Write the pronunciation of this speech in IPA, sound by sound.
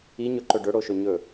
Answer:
i ɲ ɵ ǃ ɵ ɖ ɵ ɽ o ʃ ɵ ɲ ɵ

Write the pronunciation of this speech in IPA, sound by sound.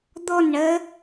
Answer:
d̪ ɔ n ɳ ɜ

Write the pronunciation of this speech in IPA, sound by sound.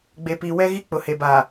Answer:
ɡ͡b e˨ p iː˨ w ɛ˦ ɣ i˦ k͡p ʊ˨ h e˨ b a˨

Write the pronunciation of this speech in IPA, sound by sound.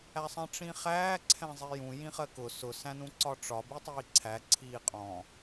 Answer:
æ sˤ ɛ̃ ʈ͡ʂ ĩ χ æː ǀʰ ɛ̃ zˤ i j ũ j ĩ χ ɜ k ʊ s ʊ s æ̃ n ũ ǀ ɒ ʈ͡ʂ ɒ b i tˤ iː ǀʰ æ ǀʰ iː qʼ ɔ̃

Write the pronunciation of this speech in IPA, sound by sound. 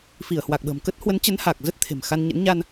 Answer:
f i˧˩ ə̯ h w a˨˩ k̚ ɓ ə̤ː˨˩ m k ə˦˥ t̚ h w ə˨˦ n t͡ɕ ə˨˦ n h aː˨˩ k̚ z ə˦˥ t̚ t̪ʰ e̤˨˩ m x a˧ n ɲ ə̰˧˥ n ɲ a˧ n

